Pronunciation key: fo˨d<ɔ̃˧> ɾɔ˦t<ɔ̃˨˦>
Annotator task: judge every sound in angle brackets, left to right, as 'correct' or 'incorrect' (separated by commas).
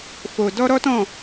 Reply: incorrect, incorrect